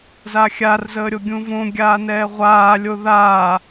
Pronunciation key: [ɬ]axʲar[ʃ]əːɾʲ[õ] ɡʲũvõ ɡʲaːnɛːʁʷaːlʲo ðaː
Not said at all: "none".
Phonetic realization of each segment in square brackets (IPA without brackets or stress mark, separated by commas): z, z, o